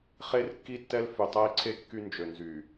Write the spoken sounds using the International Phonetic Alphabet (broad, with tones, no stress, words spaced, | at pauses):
χe˦rkːi˦tːɛ˦l fy˨tˤɛ˦i̯ǀʰe˦ kːy˦nd͡ʒø˨nzy˨